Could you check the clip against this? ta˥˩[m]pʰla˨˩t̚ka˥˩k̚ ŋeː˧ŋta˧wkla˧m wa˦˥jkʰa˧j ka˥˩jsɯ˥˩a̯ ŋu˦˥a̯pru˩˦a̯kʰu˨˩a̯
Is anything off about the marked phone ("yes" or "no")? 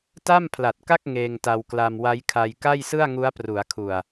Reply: no